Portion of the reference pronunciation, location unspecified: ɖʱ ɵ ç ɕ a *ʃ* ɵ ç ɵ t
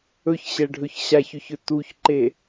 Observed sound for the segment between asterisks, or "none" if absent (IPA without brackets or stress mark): ç